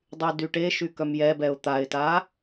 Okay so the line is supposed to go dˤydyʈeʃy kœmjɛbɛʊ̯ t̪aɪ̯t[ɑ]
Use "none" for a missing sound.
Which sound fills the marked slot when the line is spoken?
a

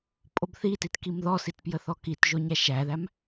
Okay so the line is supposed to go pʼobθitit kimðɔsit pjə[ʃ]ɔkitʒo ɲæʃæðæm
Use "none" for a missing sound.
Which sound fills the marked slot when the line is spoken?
θ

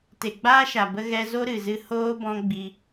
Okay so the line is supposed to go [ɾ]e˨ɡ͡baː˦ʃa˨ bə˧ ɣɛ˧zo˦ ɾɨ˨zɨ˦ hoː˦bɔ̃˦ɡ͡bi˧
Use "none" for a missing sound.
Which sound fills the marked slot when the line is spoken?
t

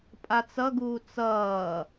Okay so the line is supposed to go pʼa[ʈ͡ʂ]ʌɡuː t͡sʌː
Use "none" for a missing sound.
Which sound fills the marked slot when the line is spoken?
t͡s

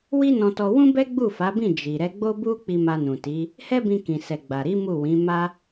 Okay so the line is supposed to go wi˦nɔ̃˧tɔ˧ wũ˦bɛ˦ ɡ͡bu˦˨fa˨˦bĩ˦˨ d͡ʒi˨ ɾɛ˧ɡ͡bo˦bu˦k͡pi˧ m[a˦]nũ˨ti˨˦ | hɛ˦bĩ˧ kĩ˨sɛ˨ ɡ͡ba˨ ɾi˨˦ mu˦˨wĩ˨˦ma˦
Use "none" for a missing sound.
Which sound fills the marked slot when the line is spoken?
a˧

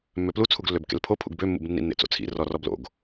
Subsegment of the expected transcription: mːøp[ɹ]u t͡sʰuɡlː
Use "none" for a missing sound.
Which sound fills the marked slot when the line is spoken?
l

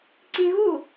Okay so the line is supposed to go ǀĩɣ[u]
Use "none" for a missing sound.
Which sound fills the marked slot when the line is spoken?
u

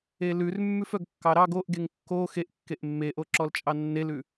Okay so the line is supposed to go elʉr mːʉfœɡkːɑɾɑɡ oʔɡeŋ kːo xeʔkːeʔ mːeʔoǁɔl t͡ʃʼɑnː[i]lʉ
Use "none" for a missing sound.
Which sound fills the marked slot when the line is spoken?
e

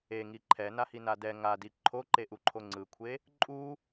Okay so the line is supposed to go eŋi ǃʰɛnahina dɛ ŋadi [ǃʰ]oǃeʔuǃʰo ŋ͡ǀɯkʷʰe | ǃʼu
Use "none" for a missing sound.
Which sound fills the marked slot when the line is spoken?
ǃʰ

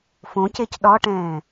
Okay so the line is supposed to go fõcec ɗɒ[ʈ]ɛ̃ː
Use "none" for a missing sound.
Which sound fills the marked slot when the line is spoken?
ʈ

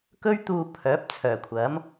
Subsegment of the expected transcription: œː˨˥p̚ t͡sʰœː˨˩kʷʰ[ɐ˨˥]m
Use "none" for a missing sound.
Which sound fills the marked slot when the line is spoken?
ɐ˨˥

